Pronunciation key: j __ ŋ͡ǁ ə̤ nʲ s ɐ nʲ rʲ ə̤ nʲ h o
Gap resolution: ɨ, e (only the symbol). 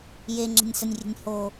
e